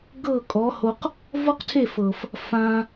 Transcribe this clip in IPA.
ɡ ɤ˦˨ kʼ ɔ˨˦ h o˧ q | v ɔ˦ q tʰ e˦˨ f ɤ˨ f | f ã˧

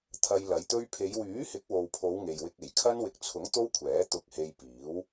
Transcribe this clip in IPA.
t̪ʰ ɐ˧ j l ɐ˨˧ j t̪ ɵ˧ ɥ pʰ e˨˧ j w yː˨˥ h ɪ˨˥ k̚ w o˨ w pʰ o˨˧ w ŋ e˨ j w ɪ˧ k̚ e˨˩ j kʰ ɐ˥ n w ɪ˨ k̚ t͡sʰ ʊ˨˥ ŋ t̪ o˥ w kʷʰ ɛː˨˥ t̪ ʊ˧ k̚ h e˧ j p iː˨˥ w

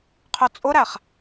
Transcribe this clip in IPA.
qʰ œ t͡sʼ ʊ ɾ æ χ

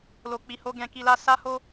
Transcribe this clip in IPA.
l o˨ k͡p i˨ h o˧ ɡ ɛ̃˧ k i˧ l a˦ s a˦ h o˦

